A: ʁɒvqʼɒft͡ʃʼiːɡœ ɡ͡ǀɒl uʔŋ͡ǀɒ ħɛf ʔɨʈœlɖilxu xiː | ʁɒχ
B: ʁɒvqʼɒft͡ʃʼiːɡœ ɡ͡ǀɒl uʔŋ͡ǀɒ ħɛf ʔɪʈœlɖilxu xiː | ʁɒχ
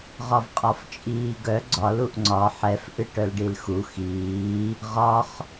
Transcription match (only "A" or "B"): A